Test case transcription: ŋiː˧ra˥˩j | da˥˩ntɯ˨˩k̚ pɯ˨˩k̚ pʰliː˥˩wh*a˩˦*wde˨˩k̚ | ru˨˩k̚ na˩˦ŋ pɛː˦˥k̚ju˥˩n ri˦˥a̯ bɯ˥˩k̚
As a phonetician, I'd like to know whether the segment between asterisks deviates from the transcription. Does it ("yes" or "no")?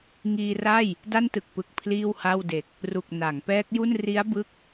yes